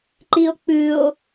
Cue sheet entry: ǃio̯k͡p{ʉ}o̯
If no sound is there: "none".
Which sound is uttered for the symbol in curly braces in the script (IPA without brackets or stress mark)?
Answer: ʉ